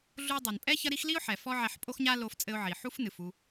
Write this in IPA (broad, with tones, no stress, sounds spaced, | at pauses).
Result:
ɮ u˧ dˤ ɨ˩ n pʼ ɛ˥ ç ɐ˥ ɾ i˥ x l i˥ ʊ̯ ħ ɛ˩ f ɔ˥ ʕ ɛ˧ ħ pʼ o˥ x ɲ a˥ l o˧ f t͡sʼ ɘ˧ ʊ̯ ʕ i˩ ħ u˥ f n ɨ˩ f u˧